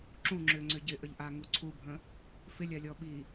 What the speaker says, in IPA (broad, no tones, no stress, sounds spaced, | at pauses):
ǁ ũ ŋ͡ǁ ʏ ŋ͡ǀ ʏ ɟ ɪ ʔ ə ʎ ʔ a ŋ u ǀʰ u bʱ ə̃ | f ɪ lʲ a lʲ ɔ ɓ i